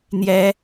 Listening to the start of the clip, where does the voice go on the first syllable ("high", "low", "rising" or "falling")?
high